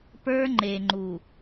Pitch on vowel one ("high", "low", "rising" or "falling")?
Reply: high